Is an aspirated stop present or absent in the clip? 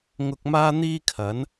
present